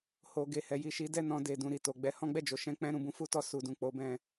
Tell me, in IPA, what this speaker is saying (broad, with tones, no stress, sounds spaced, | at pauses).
h o˨ ɡ e˨ h ɛ˨ j i˨ ʃ i˨˦ d ɛ˦˨ n ɔ̃˧ d e˨ d ũ˨ ɾ i˨ t o˨ ɡ͡b ɛ˧ h ɔ̃˦ ɡ͡b ɛ˦˨ d͡ʒ o˨˦ ʃ ɛ̃˧ k͡p ɛ̃˧ ɾ ũ˨ b ũ˨˦ f u˦ t ɔ˧ s u˨ d ũ˨ k͡p o˨˦ b ɛ̃˧